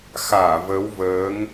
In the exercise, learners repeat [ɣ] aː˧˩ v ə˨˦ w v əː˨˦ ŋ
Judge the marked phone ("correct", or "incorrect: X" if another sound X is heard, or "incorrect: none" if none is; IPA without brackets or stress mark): incorrect: x